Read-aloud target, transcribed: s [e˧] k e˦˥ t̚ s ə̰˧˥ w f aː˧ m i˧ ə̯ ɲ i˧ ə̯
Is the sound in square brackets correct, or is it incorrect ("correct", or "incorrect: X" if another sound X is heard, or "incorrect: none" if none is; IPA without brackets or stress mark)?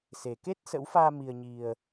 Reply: incorrect: e˨˩